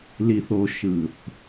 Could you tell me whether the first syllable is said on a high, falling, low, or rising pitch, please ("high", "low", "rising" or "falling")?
low